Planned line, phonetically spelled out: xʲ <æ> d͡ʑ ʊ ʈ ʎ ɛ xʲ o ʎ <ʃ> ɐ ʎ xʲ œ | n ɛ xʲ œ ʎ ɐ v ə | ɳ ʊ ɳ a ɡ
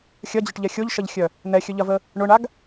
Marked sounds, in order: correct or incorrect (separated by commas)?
incorrect, correct